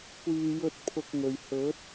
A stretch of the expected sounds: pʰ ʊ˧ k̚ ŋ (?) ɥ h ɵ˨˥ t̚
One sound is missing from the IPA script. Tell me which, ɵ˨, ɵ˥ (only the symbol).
ɵ˨